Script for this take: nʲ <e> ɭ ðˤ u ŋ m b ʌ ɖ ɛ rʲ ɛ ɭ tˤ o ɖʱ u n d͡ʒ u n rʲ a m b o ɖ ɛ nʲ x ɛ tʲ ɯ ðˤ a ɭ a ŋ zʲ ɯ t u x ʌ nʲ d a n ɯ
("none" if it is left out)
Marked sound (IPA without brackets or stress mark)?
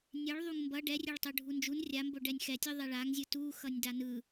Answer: e